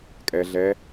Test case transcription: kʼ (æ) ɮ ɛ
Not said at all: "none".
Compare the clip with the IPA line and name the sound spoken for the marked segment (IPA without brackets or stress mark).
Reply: ɛ